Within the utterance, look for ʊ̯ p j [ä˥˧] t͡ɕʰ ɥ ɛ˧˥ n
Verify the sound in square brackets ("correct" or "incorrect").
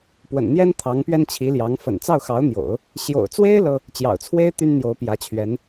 incorrect